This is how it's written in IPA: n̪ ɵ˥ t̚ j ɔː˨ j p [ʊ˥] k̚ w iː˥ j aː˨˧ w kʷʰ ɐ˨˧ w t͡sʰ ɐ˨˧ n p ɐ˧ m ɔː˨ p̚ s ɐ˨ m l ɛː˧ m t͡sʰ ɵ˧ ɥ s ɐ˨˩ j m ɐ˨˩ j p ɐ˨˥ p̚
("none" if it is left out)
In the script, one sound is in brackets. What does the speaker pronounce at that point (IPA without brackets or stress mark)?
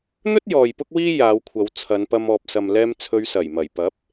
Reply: ʊ˥